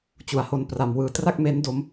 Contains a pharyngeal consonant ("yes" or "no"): no